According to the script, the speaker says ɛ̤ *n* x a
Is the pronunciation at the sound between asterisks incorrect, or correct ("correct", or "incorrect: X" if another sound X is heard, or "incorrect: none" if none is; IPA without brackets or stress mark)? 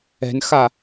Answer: correct